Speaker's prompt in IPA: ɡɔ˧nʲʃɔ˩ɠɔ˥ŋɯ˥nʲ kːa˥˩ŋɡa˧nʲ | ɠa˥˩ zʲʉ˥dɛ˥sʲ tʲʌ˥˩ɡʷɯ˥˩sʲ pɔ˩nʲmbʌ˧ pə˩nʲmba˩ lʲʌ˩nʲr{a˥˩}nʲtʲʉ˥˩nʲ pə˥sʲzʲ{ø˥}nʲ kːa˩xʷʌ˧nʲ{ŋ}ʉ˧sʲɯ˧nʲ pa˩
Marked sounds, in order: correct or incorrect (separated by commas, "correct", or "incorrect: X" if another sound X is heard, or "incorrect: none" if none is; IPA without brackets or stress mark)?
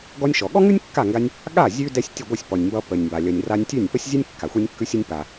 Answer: incorrect: a˧, incorrect: ɛ˥, incorrect: kː